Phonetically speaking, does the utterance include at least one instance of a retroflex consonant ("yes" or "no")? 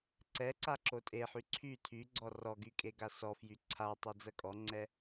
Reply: no